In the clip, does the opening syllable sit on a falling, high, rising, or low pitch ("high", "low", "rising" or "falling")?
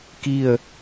falling